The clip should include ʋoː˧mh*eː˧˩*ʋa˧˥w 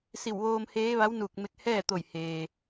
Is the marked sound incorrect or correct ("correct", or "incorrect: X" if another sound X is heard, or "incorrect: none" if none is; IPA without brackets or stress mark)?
incorrect: eː˧˥